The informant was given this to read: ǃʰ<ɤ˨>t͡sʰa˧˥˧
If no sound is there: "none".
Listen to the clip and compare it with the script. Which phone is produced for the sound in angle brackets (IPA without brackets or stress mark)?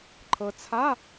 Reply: ɤ˨